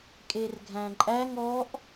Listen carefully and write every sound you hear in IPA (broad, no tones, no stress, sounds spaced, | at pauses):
kʼ e r ɡʱ æ̃ ǃʼ æ ŋ ɔ ʔ